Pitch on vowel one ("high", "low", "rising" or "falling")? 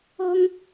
high